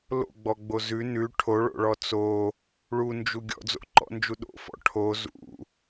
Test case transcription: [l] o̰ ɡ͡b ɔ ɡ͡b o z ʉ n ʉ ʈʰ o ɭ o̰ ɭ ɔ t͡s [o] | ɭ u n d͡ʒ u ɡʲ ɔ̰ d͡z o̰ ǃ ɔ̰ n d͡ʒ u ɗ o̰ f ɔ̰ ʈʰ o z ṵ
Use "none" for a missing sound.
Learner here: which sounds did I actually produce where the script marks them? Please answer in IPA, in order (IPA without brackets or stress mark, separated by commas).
l, o